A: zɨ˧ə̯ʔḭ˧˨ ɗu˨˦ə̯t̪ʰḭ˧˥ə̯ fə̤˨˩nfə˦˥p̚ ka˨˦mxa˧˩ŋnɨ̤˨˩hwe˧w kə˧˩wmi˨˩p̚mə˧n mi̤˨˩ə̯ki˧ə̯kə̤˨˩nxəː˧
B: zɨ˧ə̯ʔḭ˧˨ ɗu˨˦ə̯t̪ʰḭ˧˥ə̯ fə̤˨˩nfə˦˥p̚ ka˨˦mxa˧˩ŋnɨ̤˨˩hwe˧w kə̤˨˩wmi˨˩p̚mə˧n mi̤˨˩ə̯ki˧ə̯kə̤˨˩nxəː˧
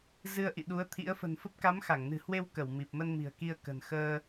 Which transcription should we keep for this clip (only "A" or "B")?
A